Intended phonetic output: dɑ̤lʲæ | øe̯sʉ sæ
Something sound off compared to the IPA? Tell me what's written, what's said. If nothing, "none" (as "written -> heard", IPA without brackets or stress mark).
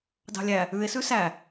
ø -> ʉ